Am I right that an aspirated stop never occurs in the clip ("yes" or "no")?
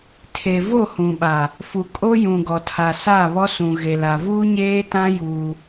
no